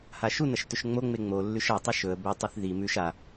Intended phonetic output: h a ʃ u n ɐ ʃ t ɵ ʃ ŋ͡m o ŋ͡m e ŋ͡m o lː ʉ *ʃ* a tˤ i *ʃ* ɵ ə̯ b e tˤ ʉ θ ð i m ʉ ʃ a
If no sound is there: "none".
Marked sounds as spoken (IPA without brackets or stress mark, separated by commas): ʃ, ʃ